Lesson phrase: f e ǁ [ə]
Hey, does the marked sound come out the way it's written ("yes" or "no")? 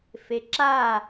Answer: no